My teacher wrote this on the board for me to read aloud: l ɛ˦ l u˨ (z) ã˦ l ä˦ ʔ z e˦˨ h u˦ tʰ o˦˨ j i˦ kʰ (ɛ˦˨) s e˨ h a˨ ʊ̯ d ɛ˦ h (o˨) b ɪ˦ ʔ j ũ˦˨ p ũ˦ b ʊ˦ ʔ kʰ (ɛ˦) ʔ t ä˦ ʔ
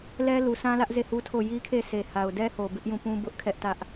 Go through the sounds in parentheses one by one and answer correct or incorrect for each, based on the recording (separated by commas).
incorrect, incorrect, correct, correct